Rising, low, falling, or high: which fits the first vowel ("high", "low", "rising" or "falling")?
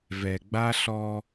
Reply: low